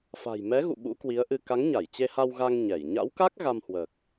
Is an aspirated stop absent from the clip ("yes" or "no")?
yes